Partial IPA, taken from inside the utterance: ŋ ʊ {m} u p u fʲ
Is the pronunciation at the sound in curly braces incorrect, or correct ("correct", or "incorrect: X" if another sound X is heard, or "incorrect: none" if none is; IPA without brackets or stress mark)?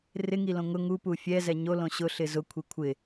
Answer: incorrect: ŋ